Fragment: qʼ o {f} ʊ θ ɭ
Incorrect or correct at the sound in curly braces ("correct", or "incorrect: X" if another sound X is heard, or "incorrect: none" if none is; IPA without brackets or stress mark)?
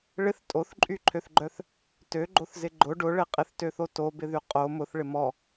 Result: incorrect: m